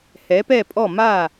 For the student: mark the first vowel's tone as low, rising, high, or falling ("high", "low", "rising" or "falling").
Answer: rising